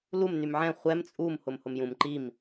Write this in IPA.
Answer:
l u m n y m ʕ ɛ̃ χʷ ɛ m t͡sʼ u m h ʊ m h ʊ m j ũ m ǃ i m

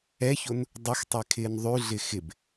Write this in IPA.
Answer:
ɛ ç o n | dˤ ɵ x tˤ ɛ kʰ ɪː n ðˤ ʉ ɮ ɪ x ɪ b

